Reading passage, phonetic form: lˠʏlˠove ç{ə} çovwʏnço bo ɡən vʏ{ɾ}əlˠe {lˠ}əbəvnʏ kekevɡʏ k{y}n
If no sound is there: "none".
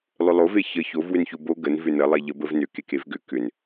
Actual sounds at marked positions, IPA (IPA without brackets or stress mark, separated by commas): ə, n, ʎ, ʏ